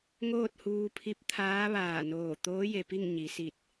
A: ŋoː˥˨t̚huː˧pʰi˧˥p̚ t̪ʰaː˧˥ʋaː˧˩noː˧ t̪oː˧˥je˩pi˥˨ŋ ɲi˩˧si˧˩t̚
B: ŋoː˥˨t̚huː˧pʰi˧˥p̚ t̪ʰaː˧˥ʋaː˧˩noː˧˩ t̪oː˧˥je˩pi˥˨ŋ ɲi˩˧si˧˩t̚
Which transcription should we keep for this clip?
B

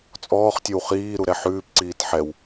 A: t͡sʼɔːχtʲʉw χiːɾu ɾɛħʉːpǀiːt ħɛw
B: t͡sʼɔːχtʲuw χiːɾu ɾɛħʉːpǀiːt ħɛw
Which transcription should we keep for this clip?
A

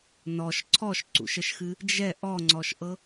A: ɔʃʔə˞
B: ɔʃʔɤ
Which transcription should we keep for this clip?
B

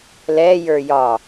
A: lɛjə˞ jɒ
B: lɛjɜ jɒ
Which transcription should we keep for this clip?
A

